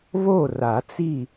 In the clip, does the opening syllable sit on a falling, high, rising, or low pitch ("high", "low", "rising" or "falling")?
falling